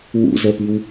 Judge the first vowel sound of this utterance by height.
high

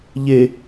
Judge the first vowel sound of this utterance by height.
mid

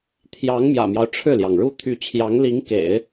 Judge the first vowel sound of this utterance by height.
low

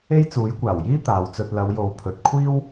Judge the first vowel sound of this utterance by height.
mid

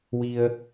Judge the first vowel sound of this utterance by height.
high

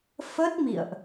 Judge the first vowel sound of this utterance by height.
mid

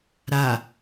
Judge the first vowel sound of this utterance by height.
low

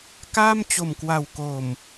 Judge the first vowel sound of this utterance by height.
low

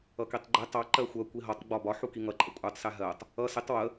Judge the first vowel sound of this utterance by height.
mid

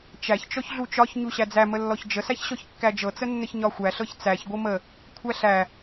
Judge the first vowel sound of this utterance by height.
low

